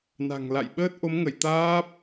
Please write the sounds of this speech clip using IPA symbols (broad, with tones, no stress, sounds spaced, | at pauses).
n a̤˨˩ ŋ l a̰˧˨ j ɓ əː˦˥ t̚ ʔ o˨˦ m ŋ ə˧˩ j t̪ aː˦˥ p̚